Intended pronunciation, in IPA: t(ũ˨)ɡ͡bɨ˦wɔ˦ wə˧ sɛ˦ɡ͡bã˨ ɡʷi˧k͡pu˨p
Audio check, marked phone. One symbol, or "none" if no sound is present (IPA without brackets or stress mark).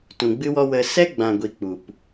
ũ˨